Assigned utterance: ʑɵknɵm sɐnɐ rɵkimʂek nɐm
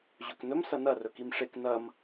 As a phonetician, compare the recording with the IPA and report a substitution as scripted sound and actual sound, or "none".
none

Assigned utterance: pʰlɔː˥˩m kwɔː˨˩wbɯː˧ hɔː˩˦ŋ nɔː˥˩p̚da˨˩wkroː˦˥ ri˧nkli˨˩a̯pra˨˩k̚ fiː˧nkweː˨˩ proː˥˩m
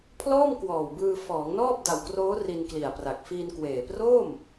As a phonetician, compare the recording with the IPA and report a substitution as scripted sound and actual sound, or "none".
h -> f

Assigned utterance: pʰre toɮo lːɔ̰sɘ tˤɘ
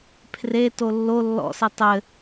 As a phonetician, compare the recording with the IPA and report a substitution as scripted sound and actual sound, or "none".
ɮ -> lː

